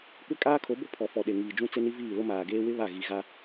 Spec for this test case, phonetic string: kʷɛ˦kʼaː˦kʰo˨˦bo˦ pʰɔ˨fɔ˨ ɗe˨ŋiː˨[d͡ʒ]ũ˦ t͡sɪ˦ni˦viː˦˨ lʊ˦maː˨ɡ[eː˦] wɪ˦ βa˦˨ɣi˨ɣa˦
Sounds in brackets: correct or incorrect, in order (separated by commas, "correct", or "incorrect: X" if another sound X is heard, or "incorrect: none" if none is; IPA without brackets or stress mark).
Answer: correct, correct